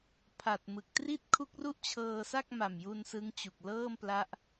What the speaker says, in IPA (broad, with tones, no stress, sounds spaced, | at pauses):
pʰ a˨˩ t̚ m ɯ˨˩ k̚ t r i˥˩ t̚ kʰ u˦˥ k̚ r u˥˩ ʔ t͡ɕʰ ɤː˧ s a˥˩ k̚ m a˨˩ m j u˧ n s ɯ˦˥ ŋ t͡ɕ u˨˩ k̚ l ɤː˥˩ m p l a˦˥ ʔ